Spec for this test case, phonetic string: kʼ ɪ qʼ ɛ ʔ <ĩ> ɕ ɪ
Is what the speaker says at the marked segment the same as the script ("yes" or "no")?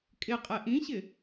yes